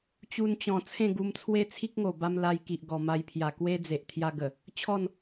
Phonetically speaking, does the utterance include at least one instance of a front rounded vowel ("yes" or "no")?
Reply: no